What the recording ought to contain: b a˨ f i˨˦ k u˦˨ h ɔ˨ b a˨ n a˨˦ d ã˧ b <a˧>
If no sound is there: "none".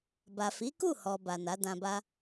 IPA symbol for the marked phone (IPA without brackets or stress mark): a˦